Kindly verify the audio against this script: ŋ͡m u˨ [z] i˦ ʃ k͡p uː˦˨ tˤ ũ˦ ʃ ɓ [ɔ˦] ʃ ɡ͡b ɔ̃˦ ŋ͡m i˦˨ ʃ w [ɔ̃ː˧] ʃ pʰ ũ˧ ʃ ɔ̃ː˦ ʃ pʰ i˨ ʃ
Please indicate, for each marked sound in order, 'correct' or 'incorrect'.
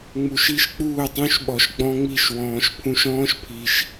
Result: incorrect, incorrect, incorrect

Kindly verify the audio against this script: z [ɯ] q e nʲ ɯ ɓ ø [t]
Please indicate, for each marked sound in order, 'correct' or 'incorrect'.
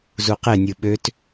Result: incorrect, correct

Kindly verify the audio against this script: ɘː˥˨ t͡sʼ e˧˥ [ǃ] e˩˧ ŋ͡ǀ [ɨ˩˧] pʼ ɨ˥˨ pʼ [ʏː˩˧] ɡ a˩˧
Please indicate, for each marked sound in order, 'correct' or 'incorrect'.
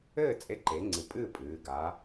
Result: correct, correct, incorrect

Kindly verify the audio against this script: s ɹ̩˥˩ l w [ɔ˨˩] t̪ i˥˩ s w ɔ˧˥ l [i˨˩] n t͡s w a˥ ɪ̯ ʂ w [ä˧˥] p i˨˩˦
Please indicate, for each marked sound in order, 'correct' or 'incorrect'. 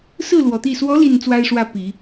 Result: correct, correct, incorrect

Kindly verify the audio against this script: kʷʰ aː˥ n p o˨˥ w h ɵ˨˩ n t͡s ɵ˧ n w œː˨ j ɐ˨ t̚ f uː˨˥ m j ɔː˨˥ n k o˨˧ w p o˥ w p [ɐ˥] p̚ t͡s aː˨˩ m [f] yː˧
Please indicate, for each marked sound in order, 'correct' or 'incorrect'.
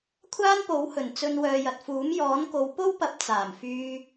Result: incorrect, correct

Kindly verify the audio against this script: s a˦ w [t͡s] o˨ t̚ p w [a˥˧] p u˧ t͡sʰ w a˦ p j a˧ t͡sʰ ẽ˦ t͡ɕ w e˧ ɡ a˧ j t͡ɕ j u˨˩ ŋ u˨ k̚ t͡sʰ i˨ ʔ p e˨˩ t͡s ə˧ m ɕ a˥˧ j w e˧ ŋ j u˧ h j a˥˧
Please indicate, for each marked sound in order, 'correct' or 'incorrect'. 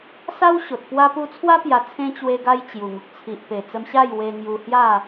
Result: incorrect, incorrect

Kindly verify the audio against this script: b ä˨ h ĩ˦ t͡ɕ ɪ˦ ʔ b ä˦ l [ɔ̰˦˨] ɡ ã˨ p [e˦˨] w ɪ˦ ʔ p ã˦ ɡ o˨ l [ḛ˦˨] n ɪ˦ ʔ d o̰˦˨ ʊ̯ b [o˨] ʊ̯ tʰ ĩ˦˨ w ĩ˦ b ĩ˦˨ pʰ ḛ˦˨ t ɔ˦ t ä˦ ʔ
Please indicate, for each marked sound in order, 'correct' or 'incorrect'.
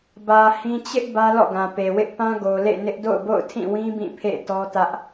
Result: correct, incorrect, correct, incorrect

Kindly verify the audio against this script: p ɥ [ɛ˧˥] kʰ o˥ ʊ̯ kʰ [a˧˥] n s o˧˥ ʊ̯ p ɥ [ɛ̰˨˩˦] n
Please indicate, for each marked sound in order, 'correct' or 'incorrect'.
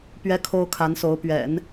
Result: incorrect, correct, correct

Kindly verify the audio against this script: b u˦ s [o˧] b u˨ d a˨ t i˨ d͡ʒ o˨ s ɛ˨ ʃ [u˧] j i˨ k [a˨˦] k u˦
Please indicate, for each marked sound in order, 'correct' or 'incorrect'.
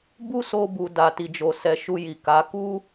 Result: correct, correct, correct

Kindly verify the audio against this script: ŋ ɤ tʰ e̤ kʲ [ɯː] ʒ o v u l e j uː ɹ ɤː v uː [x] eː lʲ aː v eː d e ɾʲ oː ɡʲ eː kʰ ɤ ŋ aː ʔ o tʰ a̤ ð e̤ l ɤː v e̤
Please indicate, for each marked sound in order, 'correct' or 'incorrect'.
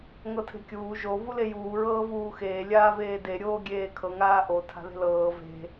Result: incorrect, correct

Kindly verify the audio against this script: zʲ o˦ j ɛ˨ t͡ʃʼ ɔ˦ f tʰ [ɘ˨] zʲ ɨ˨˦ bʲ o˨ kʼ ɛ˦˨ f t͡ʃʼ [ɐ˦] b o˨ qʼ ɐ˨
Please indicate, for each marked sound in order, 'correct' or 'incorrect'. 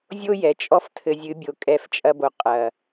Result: correct, correct

